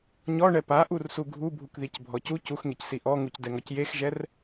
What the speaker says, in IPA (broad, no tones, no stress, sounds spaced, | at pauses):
ɲ ɔ ɳ ɛ p a ʔ u r s u ɡʱ u bʱ u k ð i c bʱ ɔ c u c u x ŋ e c s i ʔ ɔ ŋ u c d ɛ ŋ ɔ c j e x ʒ ɛ r